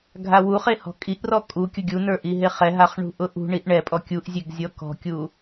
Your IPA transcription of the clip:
ɡʱ a w u χ e h ɔ̤ kʼ i ʔ r ɔ kʼ u kʲ ʊ ɡʲ u n ə˞ ʔ i ɦ e χ ɛ ɦ a χ ɳ ṳ ʔ ʊ ʔ ṳ ɳ i ʔ ɳ ɛ pʼ ɔ kʲ u ʔ zʲ e ɡ zʲ ɔ k ɔ̤ kʲ u

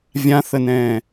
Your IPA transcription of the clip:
vʲ ã θ ə n ɛ̃ː

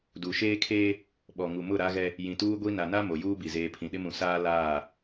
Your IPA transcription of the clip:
d u˨ ʃ eː˦ kʰ eː˦ | ɓ ɔ˨ ŋ u˨ m ʊ˦˨ ɾ a˦ ɣ ɛ˦ | j ĩ˨ t uː˦ ɡʷ i˦ n a˨ n a˦ m o˨ j uː˦ b i˨ z eː˨ pʰ ĩ˨ ɗ ɪ˦ m ũ˨ s aː˦ l aː˦˨

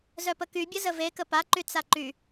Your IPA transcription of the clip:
z œ p ə k y bʲ ə z ə v e k ə p a ǃ y t͡s a ǃ y

